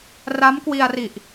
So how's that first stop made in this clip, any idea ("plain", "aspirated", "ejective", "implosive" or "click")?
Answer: plain